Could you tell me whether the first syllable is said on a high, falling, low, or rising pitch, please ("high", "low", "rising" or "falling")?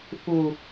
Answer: low